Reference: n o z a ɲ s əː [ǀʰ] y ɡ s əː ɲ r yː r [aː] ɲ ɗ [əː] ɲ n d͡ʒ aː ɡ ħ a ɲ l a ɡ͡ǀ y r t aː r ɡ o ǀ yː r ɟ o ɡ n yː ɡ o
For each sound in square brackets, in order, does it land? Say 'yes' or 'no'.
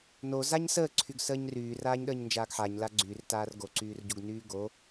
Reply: yes, yes, yes

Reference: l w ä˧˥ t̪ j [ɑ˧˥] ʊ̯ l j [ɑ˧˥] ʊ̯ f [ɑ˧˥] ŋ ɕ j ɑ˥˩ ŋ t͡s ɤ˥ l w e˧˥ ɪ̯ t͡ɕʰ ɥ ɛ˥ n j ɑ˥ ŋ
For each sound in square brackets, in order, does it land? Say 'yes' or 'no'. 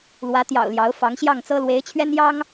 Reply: no, yes, yes

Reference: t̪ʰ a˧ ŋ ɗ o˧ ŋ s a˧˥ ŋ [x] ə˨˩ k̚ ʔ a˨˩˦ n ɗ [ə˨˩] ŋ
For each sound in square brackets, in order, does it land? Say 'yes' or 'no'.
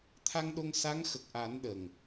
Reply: yes, yes

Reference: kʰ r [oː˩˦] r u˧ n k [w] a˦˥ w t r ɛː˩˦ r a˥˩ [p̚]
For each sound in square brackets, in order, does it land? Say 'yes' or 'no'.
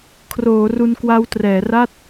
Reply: yes, yes, no

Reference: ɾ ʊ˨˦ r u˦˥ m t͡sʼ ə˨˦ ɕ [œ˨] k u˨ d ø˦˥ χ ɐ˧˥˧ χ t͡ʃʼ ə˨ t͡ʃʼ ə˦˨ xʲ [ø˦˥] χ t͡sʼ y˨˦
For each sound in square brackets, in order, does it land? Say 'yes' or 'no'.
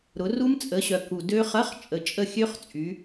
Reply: yes, yes

